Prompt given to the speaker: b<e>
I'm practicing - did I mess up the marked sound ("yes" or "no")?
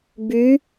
yes